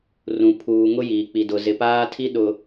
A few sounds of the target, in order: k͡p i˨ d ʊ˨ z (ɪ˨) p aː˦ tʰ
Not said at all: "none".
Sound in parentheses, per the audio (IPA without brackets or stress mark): ɪ˨